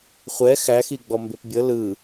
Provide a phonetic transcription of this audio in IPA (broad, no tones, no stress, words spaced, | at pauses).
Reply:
χʷɛ xæxiɡ͡bɔ mbepbʲɤ lɯ